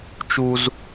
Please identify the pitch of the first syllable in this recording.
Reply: high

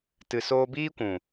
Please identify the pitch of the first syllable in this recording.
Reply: low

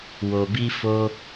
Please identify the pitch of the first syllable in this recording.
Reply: low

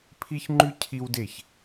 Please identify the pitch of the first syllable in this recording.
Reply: high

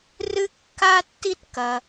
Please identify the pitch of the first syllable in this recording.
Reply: high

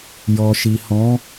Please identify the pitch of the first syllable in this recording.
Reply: low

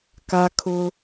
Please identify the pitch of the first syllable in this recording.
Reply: high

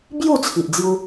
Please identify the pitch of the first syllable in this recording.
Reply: falling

